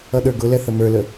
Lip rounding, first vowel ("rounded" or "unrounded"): unrounded